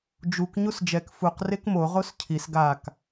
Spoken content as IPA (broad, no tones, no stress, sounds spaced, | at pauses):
d͡ʒ u k ɲ u s d͡ʒ ɛ k f u q r e k m o ʁ o s cʰ i s ɡ a k